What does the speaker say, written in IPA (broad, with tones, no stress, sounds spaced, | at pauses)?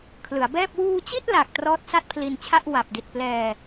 kʰ l ɯ˩˦ a̯ b ɛː˥˩ p̚ w uː˧ t͡ɕ i˥˩ t̚ l a˨˩ k̚ t r ɔː˦˥ t̚ s a˥˩ t̚ pʰ l i˧ n t͡ɕʰ a˥˩ ʔ w a˨˩ p̚ d i˨˩ t̚ p l ɛː˧